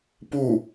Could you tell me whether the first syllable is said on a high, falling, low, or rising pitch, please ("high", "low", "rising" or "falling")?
falling